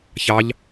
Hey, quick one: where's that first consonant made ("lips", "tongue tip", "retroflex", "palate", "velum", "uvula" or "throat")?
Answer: palate